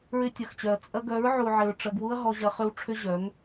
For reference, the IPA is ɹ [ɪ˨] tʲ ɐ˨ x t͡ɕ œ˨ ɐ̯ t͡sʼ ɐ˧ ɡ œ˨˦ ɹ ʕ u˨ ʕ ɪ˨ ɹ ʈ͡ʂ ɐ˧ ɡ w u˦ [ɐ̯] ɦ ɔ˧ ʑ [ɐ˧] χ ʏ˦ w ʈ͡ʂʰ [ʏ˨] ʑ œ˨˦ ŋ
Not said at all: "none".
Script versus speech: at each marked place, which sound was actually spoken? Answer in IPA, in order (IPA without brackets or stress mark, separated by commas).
ɪ˧, ɐ̯, ɐ˧, ʏ˦